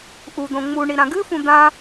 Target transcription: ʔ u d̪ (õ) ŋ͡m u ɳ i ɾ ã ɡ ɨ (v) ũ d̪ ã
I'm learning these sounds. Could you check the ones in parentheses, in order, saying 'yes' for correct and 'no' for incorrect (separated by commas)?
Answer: yes, no